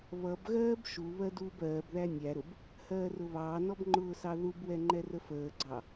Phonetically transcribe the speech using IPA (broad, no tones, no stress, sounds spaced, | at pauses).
β ʌ b ɣ ɜː b ʃ u β ɜ d uː b ɜː b ð æ nʲ æ ɾ ʊ b | h ɜː r ʊ β ɑː n ɔ b ŋ͡ǃ ʊː s ɑ ð u b w ɛ ŋ͡ǃ ɛ r ə f əː ɡ͡ǀ ɑ